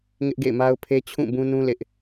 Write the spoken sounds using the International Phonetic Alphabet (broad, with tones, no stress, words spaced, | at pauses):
ŋɪ˦ʔɡḛ˦˨ɪ̯ma˦ʊ̯pʰe˦ t͡ɕʰũ˦˨bũ˦nũ˦ lɪ˦ʔ